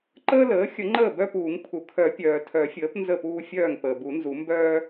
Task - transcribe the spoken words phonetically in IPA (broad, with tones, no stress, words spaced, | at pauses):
ǃəː˦ləː˩˥xʲə˨˩˦ ŋ͡ǃəː˥˩bœ˦puː˨˩˦ŋ pʰu˩kʰœ˨˩˦pʲœː˩ tʰœ˨˩˦fʲəː˩˥p nzə˥˩puː˦fʲœː˥˩ŋ pəː˩bu˨˩˦nzu˨˩˦ mbœː˦